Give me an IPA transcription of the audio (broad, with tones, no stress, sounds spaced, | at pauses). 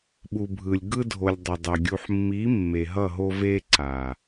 ɓ u˨ bʱ ɯ˨ lʲ ɡ ɯ˧ dʱ o˨ lʲ dˤ ɛ˨ dˤ o˨ ɡʲ u˨ ħ mː i˨˦ mː e˨ ɦ ʌ˦˨ ɦ o˧ v e˧ ǀ a˨